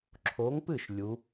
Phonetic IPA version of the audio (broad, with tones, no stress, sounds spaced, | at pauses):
ǁʰ o˨˥ ŋ p ɨ˥˩ ʃ lʲ u˨˥